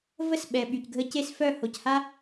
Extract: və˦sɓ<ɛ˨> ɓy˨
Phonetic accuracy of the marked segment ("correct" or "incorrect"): correct